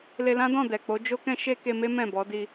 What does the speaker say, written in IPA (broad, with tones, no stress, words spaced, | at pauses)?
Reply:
le˧lã˦dɔ̃˦˨ dɛ˨k͡po˨˦d͡ʒo˦kɛ̃˦ ʃe˦ke˧me˦ mɛ̃˦˨bɔ˨˦di˧